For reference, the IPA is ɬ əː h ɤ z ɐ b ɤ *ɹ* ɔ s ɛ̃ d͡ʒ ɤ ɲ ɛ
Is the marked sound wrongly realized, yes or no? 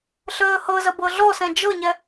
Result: yes